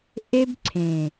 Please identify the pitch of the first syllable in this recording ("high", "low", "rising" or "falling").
high